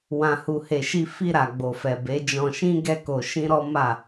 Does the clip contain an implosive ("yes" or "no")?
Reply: no